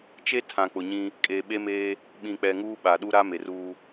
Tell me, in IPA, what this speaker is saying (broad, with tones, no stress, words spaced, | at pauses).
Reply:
t͡ʃe˦tʰã˨ k͡pʊ˨ɲĩ˦ | kʼeː˨ɓe˦meː˦ | ɓĩ˨k͡pɛ˨ ŋuː˦ɓa˨ ɗu˦ɾa˦ me˨ruː˦